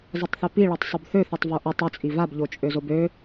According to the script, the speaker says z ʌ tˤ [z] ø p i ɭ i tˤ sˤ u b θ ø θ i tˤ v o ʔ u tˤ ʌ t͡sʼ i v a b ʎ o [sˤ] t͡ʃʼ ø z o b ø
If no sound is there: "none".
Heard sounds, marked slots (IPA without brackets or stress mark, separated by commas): θ, none